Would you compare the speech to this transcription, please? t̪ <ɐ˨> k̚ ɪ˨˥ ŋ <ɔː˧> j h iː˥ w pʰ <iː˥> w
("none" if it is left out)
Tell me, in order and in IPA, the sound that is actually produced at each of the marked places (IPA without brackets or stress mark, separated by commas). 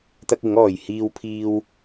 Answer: ɐ˥, ɔː˨, iː˥